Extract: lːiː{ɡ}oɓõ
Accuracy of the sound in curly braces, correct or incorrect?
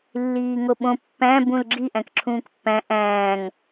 incorrect